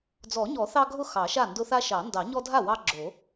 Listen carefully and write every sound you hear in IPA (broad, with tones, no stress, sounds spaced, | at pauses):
d͡z ɔ˨˩˦ ɲ ɔ˨˩˦ θ ɑ˦ ɡʱ ʊ˥˩ x ɑ˨˩˦ ʃ a˥˩ n d ʊ˦ θ a˦ ʃ ɑ˨˩˦ n d ɑ˨˩˦ ɲ ɔ˦ dʱ a˥˩ w ɑ˦ ɡ͡ǁ o˨˩˦